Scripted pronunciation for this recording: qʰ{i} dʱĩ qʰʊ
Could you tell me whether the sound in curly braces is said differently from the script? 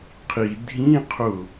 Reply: no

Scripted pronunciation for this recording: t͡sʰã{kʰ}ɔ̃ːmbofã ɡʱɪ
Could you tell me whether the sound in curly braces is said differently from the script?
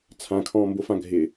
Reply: no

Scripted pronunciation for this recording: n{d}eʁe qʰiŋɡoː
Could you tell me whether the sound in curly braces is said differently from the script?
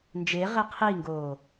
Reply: yes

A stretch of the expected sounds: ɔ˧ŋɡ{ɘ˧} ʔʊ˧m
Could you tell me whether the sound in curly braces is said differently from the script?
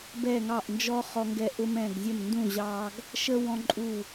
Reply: yes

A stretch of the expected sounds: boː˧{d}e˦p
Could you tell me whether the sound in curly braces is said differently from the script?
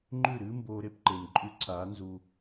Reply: yes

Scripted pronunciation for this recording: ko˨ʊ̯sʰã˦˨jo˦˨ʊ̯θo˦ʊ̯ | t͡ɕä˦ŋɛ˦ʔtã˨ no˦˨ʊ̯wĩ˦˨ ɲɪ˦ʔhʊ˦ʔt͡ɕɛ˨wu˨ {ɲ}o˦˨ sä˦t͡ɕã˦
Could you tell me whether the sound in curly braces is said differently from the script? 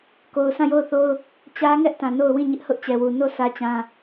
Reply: yes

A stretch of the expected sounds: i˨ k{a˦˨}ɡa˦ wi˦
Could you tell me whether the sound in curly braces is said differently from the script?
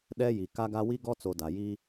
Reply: yes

